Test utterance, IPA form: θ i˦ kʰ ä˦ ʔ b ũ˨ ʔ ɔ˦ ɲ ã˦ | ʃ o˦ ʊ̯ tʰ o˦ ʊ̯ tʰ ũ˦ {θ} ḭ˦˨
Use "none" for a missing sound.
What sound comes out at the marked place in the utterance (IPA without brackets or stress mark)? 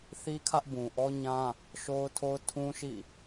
ʃ